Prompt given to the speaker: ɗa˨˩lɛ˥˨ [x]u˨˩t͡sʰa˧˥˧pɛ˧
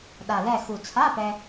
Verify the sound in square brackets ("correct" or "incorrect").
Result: correct